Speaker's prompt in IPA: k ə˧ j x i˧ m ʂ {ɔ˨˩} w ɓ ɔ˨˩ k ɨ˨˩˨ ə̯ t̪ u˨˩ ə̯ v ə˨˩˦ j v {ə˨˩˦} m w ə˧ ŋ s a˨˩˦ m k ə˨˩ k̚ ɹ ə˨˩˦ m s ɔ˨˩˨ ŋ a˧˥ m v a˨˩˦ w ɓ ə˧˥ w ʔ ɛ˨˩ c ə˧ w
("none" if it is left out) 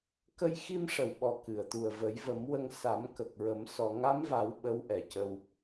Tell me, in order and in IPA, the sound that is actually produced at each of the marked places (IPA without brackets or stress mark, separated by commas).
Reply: ə˨˩, ə˨˩˦